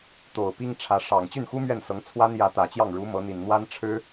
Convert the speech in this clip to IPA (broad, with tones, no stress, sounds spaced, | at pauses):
t̪ o˨˩ ʊ̯ p i˥ ŋ ʈ͡ʂʰ ä˧˥ ʂ ɑ˨˩ ŋ t͡ɕ y˥˩ n x u˥ m ɥ ɛ˥˩ n s ɤ˧˥ ŋ t͡sʰ w a˥ n j ä˧˥ t̪ ä˨˩ t͡ɕ j ɑ˥˩ ŋ ɻ u˧˥ m ɤ˧˥ n̪ i˨˩ n n̪ w a˥ n ʈ͡ʂʰ ɻ̩˥